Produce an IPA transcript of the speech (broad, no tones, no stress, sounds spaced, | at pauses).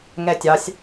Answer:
ŋ ɛ tʲ ɑ sʲ